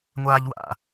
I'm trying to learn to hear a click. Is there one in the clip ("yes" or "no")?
no